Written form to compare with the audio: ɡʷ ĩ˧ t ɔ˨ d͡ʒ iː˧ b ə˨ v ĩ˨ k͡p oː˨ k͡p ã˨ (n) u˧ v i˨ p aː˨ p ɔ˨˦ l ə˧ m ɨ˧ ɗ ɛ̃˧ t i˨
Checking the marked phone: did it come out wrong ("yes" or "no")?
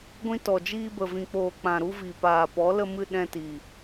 yes